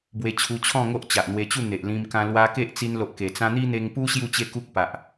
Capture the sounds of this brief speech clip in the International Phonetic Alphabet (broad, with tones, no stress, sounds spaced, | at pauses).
b w e˧ t͡ɕʰ u˧ t͡ɕʰ ɔ̃˥˧ ŋ o˦ ʔ t͡ɕ a˨ ʔ n̪ w e˧ t͡ɕ u˥˧ n̪ e˨ ʔ l ĩ˧ m k ã˧ l w a˧ k e˦ ʔ t͡s i˧ n l o˨ ʔ k e˨˩ t͡s ã˧ n̪ i˦ n̪ e˧ ŋ p u˦ ɕ j u˥˧ t͡ɕ e˥˧ k u˦ k̚ p a˨ ʔ